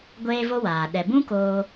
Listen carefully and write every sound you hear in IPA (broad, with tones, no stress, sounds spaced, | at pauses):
ɡʷ eː˦ v o˦ w aː˨ ɗ ɛ˨ b ũ˦ k oː˧